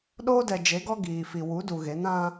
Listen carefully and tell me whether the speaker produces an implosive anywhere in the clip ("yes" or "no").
yes